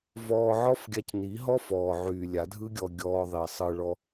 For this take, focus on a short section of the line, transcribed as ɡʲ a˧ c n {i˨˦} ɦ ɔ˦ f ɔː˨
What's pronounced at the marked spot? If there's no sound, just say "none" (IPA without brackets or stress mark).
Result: i˨˦